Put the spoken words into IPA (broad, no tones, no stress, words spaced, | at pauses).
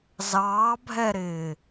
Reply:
zɑːbʱɛɾɪː